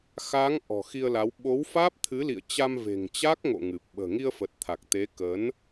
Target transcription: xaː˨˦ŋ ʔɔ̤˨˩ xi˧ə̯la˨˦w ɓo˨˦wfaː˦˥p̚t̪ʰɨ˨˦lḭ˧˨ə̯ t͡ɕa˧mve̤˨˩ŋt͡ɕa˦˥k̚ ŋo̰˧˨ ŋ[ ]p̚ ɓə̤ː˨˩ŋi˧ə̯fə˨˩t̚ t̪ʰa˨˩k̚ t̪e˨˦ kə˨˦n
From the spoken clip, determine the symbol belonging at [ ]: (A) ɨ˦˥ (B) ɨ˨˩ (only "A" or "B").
B